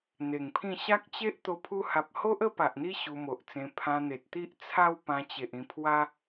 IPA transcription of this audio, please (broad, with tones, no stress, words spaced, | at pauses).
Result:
n̪e˨˩ŋpʰĩ˥˧ ɕa˦k̚t͡ɕe˦ʔ t̪o˧pʰu˧ha˨p̚ho˦ʔ ə˦pa˨ʔn̪i˦ ɕu˧mo˨ʔt͡sẽ˧ pʰã˧n̪e˨t̚t̪i˦ʔ t͡sʰa˦w pã˧t͡ɕe˨ʔ ĩ˨˩pʰwa˧